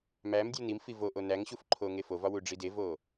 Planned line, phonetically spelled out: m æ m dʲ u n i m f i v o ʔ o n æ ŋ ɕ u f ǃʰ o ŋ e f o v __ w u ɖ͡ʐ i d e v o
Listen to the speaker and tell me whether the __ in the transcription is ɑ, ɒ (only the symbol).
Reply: ɒ